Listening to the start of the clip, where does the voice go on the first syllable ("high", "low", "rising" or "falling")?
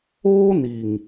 high